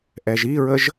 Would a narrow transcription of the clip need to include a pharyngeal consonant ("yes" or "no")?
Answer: no